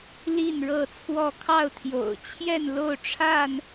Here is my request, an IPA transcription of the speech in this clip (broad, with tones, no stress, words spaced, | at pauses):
li˥˨nɻɤ˥˨t͡sʰwɔ˥˨ kʰɑ˥˨ʊ̯t̪ʰjo̰˨˩ʊ̯ t͡ɕʰjɛ˥˨nlo˥˨ʊ̯ʈ͡ʂʰa˥˨n